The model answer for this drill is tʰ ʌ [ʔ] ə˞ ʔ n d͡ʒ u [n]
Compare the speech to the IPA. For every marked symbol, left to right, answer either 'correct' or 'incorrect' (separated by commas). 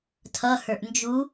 incorrect, incorrect